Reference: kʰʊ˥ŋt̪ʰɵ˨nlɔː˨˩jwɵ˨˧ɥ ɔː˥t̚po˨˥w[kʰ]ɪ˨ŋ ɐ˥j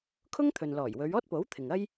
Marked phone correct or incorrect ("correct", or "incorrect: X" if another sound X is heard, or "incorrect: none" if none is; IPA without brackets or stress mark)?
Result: incorrect: t̪ʰ